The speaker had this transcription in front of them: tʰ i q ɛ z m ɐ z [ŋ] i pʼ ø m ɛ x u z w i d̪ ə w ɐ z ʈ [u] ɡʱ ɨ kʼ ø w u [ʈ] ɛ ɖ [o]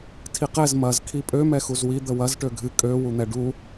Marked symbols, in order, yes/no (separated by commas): no, no, no, no